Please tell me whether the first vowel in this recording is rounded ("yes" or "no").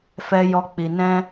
no